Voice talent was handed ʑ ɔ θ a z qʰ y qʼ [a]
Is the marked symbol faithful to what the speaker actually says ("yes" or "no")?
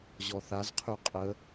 no